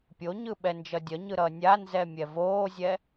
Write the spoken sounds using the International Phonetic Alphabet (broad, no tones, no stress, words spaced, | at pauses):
pʲoɲɯ ɓɛnd͡ʒʌdʲʌɲɯ ɾʌnʲanzɛ mʲɛvoːzʲɛ